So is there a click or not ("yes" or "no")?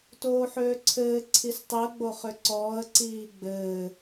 yes